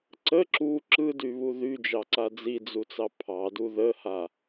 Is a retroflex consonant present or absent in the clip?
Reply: absent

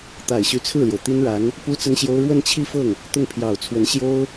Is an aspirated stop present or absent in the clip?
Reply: present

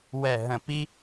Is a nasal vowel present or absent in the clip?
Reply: present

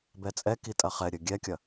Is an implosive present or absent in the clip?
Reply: absent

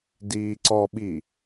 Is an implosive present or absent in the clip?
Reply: present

